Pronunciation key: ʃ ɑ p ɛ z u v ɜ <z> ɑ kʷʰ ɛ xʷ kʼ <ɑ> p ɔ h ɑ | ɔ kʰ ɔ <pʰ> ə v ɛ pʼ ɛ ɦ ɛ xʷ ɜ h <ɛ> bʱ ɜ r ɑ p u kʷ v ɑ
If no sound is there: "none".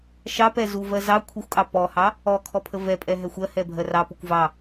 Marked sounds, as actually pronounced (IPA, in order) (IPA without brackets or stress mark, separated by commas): z, ɑ, pʰ, ɛ